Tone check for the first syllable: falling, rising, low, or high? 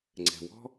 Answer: low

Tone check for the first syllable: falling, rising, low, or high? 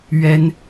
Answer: high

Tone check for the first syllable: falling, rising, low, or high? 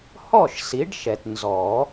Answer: falling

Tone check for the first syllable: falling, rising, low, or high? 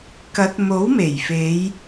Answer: rising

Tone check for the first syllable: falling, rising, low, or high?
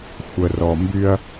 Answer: low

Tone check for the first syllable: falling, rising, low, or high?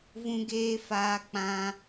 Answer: high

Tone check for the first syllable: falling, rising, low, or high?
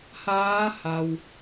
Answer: rising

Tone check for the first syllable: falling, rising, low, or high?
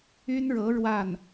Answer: high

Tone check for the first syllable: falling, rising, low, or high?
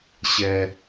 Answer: high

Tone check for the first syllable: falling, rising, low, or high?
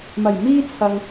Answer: low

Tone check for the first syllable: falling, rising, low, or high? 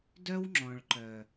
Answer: high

